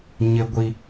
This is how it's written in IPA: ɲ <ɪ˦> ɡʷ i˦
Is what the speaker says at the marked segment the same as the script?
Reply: yes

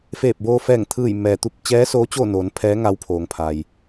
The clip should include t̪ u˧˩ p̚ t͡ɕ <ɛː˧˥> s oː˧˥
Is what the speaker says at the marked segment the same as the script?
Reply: yes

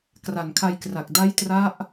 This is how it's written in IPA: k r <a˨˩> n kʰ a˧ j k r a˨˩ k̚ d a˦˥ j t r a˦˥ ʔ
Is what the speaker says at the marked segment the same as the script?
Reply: yes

